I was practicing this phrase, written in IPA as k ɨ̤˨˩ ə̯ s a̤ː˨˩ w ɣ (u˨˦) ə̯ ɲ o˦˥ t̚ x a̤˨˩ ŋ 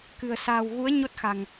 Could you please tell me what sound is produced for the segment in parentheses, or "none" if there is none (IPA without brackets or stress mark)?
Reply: u˨˦